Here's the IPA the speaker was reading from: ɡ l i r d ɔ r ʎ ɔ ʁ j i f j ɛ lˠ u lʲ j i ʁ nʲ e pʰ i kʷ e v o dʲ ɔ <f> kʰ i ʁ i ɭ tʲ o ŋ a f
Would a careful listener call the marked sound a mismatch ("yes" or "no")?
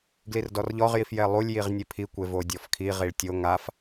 no